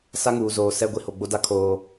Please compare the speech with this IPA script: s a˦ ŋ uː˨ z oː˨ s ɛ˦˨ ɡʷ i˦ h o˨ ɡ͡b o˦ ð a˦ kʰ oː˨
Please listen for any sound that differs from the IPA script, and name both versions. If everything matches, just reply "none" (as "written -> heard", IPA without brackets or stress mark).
ð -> d